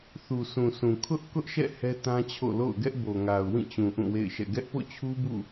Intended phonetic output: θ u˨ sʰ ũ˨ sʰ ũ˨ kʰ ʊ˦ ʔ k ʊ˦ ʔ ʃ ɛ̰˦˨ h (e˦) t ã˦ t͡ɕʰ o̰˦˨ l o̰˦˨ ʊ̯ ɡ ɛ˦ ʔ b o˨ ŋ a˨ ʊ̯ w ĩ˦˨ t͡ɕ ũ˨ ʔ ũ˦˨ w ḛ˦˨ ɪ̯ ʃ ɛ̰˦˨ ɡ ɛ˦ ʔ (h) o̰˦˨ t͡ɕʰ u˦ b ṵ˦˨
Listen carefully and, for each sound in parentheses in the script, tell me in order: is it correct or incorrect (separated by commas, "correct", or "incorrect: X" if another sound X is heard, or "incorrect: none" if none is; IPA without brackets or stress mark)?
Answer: incorrect: ɛ˦, incorrect: p